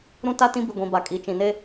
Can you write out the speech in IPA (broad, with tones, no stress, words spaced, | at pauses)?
ɾũ˦ta˦ tĩ˦ bi˨ɡʷĩ˨ ba˨ kʼi˨t͡ʃĩ˨ne˦